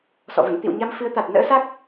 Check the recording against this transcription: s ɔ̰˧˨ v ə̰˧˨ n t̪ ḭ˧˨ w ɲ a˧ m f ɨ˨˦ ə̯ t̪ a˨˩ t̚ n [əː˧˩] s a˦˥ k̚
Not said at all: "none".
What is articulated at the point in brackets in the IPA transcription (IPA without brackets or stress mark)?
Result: ə̰ː˧˥